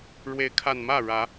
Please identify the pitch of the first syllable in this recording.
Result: rising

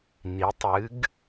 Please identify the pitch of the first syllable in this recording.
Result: rising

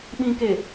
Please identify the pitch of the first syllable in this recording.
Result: low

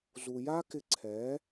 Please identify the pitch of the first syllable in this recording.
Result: low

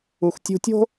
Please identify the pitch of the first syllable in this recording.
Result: low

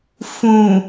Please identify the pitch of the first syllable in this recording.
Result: low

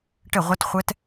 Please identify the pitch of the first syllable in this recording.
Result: falling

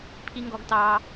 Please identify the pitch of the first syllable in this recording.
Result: high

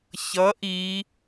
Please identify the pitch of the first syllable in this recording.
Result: rising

